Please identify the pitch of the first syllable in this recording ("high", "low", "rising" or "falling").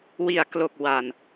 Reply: low